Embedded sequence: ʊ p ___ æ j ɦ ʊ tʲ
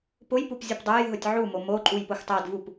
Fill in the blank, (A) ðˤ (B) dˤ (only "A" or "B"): B